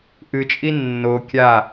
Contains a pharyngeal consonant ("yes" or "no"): no